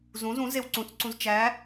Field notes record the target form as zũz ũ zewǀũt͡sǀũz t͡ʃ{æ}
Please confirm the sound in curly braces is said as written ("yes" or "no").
yes